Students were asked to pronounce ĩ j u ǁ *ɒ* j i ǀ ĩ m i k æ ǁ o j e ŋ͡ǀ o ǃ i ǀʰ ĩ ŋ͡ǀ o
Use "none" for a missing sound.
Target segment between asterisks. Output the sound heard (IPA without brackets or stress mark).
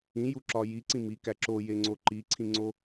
ɒ